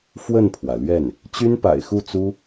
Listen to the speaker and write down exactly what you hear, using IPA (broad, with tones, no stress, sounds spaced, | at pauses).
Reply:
f w ə˥˩ n pʰ w ä˩ l ɥ ɛ˥˩ n | t͡ɕ y˥ n p a̰˨˩ ɪ̯ x u˥˩ t͡s u˥